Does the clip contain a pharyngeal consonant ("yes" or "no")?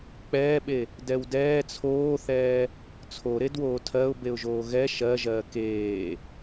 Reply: no